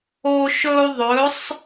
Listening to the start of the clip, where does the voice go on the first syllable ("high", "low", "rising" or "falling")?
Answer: high